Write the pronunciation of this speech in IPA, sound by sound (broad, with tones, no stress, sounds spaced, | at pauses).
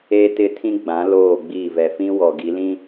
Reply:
e˦ t ɪ˦˨ tʰ ĩ˦ ɡ͡b ã˨˦ l oː˦˨ ɡ͡b iː˦˨ v ɛ˨ f ĩ˦ w ɔ˨ ɡ i˨˦ l ĩ˦